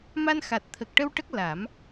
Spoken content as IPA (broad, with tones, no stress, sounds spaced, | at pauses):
m a˧ n x a˨˩ t̚ t̪ʰ ə˨˩ k̚ ʈ ə˧ w ʈ ə˦˥ k̚ l a˨˩˦ m